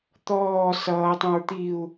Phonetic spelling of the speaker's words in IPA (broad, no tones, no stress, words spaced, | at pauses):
t̪ɔː sʌːtˤõɹ t̪iu̯